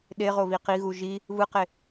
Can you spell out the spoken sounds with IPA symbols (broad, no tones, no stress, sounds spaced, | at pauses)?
ɗ e ʁ o β i q i ɣ u ʒ i | β ɯ q e